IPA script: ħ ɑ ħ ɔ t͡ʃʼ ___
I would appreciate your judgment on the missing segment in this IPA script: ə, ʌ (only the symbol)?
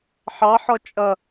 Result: ʌ